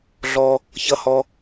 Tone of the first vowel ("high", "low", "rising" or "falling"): high